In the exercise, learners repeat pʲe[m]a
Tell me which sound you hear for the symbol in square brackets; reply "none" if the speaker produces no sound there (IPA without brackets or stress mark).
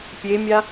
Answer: mʲ